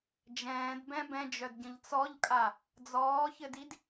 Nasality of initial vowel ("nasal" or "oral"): nasal